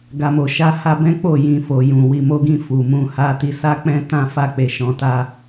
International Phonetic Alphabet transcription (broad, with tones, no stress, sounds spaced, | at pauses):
ɡ a˨ m o˨ ʃ a˧ h a˧ b ɛ̃˦ k͡p o˦˨ j ĩ˨ f o˨ j ũ˨ w i˨ m o˧ ɡ ĩ˧ f u˨ m ũ˧ h a˧ t i˧ s a˦ k͡p ɛ̃˦ t ã˦ f a˦˨ k͡p e˧ ʃ ɔ̃˧ t a˦